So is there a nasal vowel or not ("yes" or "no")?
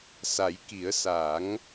no